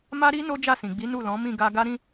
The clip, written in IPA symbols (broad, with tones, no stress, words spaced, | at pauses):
ma˦ɾi˦ no˦d͡ʒa˦˨sĩ˨ɡ͡bi˨˦ nu˦˨ lɔ̃˨˦ mĩ˦˨ɡa˧ ɡa˦ɾĩ˦